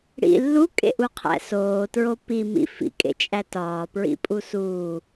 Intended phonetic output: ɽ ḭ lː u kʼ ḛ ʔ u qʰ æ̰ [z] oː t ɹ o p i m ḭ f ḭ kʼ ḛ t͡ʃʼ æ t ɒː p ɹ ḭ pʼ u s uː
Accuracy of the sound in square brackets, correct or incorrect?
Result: incorrect